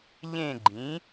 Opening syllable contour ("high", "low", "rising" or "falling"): falling